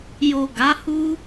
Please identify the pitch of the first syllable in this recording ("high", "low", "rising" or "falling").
low